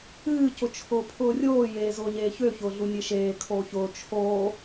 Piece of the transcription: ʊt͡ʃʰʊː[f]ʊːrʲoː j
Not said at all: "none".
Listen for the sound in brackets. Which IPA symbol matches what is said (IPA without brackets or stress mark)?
pʰ